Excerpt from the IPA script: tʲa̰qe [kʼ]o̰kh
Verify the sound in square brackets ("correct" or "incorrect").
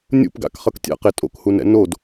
incorrect